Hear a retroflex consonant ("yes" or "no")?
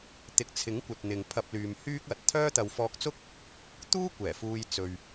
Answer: no